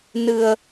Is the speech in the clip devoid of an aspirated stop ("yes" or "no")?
yes